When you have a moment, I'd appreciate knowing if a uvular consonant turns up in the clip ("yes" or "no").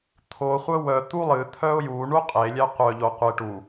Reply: yes